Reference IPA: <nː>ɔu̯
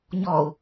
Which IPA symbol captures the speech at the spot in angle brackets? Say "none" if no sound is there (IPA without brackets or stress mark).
ɲ